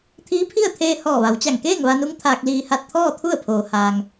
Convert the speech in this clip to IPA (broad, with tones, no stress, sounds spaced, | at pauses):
t̪ʰ iː˧˥ pʰ i˥˨ ə̯ t̪ʰ eː˧ h ɔː˧˩ ʋ a˩˧ w t͡ɕ a˧˩ ŋ k eː˥˨ ŋ ʋ a˧ n u˧˥ ŋ t̪ʰ aː˧ k̚ l iː˧ h a˥˨ t̚ t̪ʰ ɔː˥˨ t̪ʰ u˥˨ ə̯ pʰ oː˩ h aː˩ ŋ